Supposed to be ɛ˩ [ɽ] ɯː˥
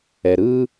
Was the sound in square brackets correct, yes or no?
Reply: no